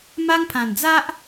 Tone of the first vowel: high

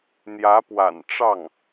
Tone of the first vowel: rising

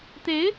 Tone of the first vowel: rising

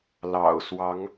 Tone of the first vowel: low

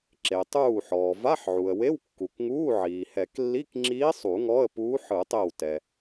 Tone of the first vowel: low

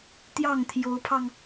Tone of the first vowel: falling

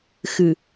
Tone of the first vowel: low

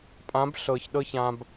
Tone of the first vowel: rising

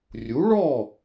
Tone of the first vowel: rising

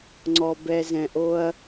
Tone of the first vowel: low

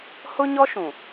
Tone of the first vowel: high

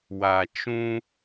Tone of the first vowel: low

